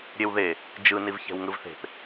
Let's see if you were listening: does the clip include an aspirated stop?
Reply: no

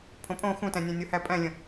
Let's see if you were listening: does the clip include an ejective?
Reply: yes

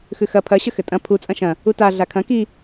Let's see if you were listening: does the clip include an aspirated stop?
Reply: yes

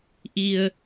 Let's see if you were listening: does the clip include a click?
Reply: no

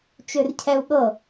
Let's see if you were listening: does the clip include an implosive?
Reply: yes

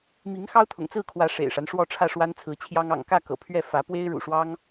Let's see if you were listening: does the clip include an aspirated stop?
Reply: yes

